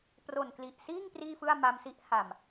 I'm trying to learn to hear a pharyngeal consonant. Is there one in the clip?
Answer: no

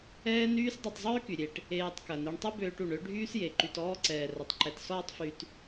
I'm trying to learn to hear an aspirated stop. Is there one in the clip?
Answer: no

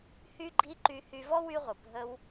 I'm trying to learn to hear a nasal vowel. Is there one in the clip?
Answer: no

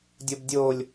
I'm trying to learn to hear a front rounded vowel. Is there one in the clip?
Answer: no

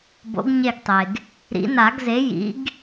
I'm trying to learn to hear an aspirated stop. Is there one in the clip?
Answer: no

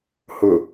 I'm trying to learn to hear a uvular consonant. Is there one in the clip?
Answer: no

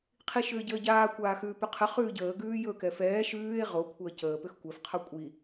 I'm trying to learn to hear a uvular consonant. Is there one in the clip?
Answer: yes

